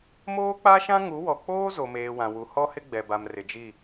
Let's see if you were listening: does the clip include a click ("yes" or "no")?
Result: no